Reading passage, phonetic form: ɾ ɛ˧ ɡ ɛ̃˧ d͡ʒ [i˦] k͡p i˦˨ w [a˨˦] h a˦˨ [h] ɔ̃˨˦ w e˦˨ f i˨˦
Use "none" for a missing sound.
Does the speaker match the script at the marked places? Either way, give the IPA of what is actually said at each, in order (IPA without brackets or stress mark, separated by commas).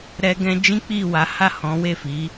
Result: ĩ˦, a˨˦, h